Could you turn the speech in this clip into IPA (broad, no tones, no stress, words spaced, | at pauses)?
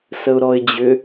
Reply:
səʊ̯ɾɔɪ̯d͡ʑʏ